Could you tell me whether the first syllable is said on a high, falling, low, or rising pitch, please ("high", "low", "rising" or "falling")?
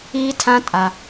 high